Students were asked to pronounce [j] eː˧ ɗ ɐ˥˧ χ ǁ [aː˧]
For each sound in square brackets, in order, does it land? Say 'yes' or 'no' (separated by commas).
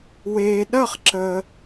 no, no